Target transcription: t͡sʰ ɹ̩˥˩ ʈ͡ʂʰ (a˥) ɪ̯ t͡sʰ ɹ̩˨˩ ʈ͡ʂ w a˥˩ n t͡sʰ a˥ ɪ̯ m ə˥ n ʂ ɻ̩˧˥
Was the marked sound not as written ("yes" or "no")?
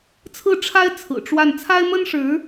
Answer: no